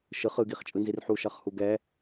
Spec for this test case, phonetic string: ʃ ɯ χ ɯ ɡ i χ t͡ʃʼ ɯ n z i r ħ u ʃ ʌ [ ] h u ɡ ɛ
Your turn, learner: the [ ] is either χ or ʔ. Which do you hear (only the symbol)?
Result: χ